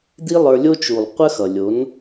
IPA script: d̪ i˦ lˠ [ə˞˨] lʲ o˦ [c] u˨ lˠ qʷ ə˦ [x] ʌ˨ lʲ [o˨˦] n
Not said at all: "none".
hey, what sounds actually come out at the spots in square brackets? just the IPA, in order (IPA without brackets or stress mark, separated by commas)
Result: ə˞˧, t͡ʃ, x, o˨˦